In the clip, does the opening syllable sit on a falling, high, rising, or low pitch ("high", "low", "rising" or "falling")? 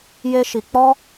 high